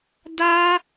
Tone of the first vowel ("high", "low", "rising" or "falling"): high